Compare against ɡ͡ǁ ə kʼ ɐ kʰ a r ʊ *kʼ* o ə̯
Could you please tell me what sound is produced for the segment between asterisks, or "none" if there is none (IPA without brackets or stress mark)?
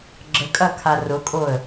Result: kʼ